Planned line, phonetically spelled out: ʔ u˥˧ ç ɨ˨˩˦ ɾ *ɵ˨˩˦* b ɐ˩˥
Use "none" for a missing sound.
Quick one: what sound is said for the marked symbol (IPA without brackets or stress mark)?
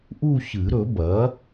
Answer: ɵ˨˩˦